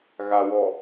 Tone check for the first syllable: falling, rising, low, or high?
low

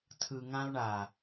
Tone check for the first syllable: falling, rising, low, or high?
low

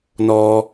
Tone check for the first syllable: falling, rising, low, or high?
high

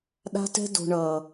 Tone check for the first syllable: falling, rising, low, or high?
high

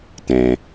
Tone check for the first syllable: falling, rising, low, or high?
low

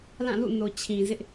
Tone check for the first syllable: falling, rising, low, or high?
falling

